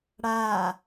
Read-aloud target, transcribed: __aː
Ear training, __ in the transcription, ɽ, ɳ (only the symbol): ɽ